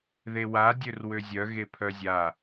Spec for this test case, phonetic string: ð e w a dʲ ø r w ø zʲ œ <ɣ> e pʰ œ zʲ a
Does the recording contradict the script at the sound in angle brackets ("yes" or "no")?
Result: no